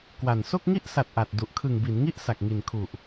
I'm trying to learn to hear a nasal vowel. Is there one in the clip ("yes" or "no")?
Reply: no